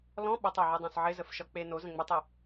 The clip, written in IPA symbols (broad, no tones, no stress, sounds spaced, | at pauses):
l ɔ̃ ɓ ə tˤ e ʕ i dˤ õ s ʕ ɪ z ə f ʃ ɒ k͡p e n o z ə̃ ŋ͡m ɪ tˤ i